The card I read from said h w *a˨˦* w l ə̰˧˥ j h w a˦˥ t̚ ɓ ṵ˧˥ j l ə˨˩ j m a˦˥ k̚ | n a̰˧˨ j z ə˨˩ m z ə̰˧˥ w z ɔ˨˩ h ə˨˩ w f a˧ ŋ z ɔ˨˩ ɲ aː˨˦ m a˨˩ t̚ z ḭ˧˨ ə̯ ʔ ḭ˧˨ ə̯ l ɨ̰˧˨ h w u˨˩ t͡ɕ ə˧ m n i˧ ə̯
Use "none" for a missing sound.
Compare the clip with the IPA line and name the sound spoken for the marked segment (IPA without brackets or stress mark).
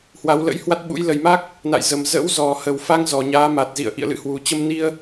a˨˦